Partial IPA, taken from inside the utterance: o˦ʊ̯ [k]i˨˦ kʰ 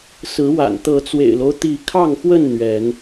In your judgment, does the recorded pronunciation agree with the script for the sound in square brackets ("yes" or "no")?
no